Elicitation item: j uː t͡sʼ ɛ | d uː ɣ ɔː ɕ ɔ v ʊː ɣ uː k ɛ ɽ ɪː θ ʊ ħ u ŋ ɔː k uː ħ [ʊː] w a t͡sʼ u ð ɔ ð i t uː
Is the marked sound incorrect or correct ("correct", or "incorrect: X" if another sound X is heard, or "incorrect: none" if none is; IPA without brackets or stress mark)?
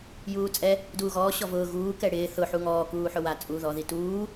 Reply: incorrect: ʊ